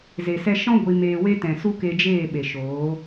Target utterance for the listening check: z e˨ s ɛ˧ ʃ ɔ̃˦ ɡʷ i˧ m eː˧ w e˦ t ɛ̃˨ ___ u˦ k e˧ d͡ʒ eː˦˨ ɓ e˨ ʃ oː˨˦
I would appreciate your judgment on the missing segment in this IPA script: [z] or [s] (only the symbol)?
s